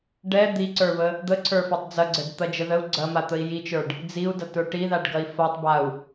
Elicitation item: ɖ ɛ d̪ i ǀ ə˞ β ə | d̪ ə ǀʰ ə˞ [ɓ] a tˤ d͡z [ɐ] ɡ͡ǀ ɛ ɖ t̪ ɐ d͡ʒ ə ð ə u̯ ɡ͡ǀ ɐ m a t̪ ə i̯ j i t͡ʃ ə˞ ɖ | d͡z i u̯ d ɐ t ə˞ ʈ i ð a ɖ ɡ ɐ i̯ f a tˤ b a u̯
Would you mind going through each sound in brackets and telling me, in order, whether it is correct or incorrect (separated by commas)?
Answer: incorrect, correct